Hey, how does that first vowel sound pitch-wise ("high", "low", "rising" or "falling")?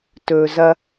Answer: low